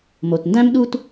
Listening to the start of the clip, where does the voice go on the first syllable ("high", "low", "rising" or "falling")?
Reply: low